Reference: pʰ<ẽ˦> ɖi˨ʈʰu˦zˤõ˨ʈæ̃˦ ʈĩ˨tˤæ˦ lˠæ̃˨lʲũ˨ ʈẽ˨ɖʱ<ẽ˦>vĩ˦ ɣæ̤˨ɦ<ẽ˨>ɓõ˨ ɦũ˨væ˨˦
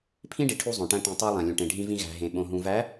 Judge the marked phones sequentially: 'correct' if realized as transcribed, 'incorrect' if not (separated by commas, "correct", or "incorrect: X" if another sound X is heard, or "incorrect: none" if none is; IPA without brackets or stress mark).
incorrect: ĩ˦, incorrect: ĩ˦, correct